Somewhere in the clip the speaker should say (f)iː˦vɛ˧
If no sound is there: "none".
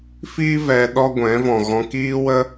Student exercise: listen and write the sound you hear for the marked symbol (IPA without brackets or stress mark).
f